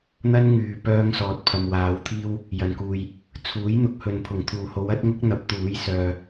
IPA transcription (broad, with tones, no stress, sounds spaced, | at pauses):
n̪ ɐ˥ n ŋ yː˨ p œː˧ ŋ s ɔː˨ t̚ pʰ ɐ˨ m w aː˨˧ w t̪ʰ iː˥ w | j ɐ˨˩ n k uː˨ j | t͡sʰ uː˨˥ j n̪ ʊ˨ k̚ h ɵ˨ n pʰ ʊ˨˩ ŋ t̪ʰ uː˨˩ h o˨˧ w ɐ˨˥ t̚ ŋ ʊ˥ k̚ n̪ ɐ˨˥ p̚ t̪ uː˨˥ j s œː˨